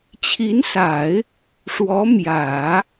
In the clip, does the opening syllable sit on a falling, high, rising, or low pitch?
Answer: rising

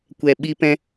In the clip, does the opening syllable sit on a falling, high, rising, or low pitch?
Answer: low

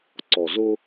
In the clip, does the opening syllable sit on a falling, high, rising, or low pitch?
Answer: low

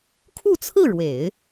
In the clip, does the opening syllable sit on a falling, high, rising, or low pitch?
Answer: falling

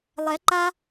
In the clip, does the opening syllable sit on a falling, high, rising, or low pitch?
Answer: rising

